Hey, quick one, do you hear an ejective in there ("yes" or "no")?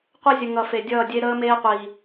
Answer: no